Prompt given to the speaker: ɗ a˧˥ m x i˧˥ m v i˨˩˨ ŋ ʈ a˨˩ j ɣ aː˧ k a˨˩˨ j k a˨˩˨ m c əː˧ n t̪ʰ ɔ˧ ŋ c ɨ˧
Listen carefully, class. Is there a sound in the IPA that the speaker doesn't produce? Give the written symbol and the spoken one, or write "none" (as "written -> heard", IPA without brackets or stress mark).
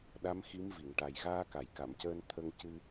ɔ˧ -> ə˧